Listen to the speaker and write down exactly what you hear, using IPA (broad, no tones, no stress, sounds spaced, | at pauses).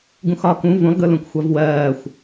ɡ ũ x ɒ k ũ v ũ lˠ ɡ ɯ l ũ k xʷ a v w ɜː xʷ